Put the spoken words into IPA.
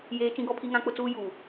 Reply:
j eː˦ t͡ʃ ĩ˦ ɡ ɔ˦ pʰ i˦ ŋ ã˦ k͡p ʊ˦ t͡s uː˦ j uː˨

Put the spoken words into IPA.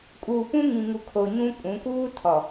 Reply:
kʼ uː˨ p ũ˦ ŋ ĩ˨ ŋ u˨ kʰ o˨ ɲ ũ˦ kʼ ũ˨˦ k uː˦ tʰ ɔ˨

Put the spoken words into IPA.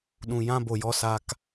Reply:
ɗ ũ˨ j ã˦ b o˨ j ɔ˧ s a˧ k

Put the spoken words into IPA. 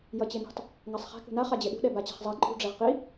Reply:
j ʌ t͡ɕ e n ṳ tˤ | ŋ a sˤ χ ɛ̤ k ṳ n a χ a d͡ʑ e ɗ ṳ ɗ ɛ b a t͡ɕ ɛ̤ χ zˤ a ǃʼ ṳ ɖ͡ʐ ɛ ʁ q i

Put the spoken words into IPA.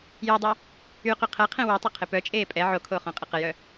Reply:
j o dˤ ɛ | y q y qʰ ɛ qʰ ẽ w y tˤ ə qʰ ɪ p œ t͡ʃʼ eː pʼ ɛ ʕ o kʰ oː χ õ qʼ ɪ q ə j œ

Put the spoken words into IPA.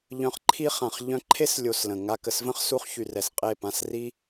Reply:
ʎ œ̃˧ χ ǃʰ i˦ χ ã˨ χ ʎ œ̃˧ ǃʰ e˦ s lʲ o˧ s l ə̃˨ ŋ a˧ k ə˨ s v ə̃˦ χ s u˧ χ ç y˨ r ɛ˨ s qʼ e˦˨ p ã˦˨ s r i˦

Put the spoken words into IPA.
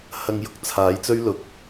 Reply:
h ɐ˧ ŋ j ʊ˨˥ k̚ t͡sʰ aː˨˥ j t͡s ɵ˥ ɥ l ʊ˨ k̚

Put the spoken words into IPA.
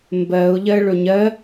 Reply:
m b ɜ ʊ̯ ʎ ɜ ɭ ɵ ɲ ɜ

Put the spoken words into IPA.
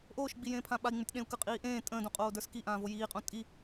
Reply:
ʔ oː ʃ ɡ͡b i j ẽː pʰ ã ɓ a i̯ ŋ͡m ʉ tʲ ɗ ẽ u̯ k ə qʼ iː ʔ ẽː tʼ ə̃ː d õ qʼ oː d ə˞ s k i ʔ ãː v o j iː qʼ õ tʼ i

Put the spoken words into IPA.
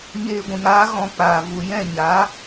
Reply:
ɲ eː˧ ɡʷ ĩ˨ ŋ aː˦ ɣ ɔ̃˧ k͡p aː˨ v u˨ j ɛ̃˦˨ ɲ aː˨˦

